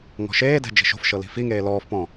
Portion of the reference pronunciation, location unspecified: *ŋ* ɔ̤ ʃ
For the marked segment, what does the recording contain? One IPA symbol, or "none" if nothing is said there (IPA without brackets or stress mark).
ŋ